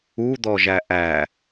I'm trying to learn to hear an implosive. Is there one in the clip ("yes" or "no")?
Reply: no